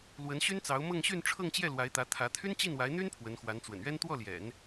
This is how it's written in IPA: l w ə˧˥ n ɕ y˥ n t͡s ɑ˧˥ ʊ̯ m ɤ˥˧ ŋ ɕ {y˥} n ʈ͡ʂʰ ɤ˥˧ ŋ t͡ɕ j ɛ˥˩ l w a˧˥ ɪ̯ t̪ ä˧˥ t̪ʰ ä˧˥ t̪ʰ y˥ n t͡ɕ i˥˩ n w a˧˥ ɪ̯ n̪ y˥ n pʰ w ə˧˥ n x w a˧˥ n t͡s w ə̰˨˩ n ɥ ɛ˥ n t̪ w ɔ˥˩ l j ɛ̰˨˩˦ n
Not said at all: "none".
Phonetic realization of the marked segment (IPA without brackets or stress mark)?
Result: y˥˧